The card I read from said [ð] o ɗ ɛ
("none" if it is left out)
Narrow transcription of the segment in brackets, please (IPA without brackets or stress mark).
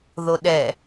ð